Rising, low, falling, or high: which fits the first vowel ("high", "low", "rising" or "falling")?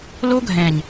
high